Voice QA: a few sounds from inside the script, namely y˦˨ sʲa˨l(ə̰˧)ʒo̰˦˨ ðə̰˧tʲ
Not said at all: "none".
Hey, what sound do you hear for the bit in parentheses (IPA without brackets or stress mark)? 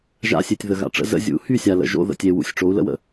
ə̰˨